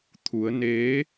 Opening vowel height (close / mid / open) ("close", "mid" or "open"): close